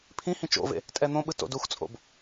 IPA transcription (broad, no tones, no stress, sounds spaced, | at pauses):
pʰ ĩ h ĩ t͡ʃ o̰ v ḛ | tʼ ɛ n̪ õ ɓ ɯ t o̰ d u x t͡sʼ o̰ b